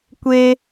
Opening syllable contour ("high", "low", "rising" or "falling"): high